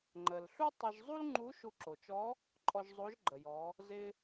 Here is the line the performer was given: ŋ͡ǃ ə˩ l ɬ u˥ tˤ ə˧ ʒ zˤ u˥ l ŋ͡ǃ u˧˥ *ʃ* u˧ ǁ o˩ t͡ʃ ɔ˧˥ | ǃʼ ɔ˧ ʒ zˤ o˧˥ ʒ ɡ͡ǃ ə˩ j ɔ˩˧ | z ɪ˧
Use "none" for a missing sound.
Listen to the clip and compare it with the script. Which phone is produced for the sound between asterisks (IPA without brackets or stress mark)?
ʃ